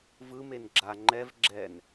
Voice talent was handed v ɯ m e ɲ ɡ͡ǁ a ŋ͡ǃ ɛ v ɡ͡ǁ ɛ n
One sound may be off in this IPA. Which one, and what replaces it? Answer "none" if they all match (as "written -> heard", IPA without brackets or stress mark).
ɲ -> n